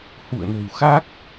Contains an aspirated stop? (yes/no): no